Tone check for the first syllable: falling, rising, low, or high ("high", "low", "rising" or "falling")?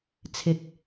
low